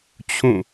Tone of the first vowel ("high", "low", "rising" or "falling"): falling